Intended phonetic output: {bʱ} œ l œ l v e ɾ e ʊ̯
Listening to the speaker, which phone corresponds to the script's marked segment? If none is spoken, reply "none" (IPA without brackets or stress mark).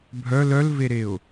bʱ